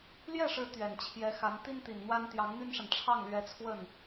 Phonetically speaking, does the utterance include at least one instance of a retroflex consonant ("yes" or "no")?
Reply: yes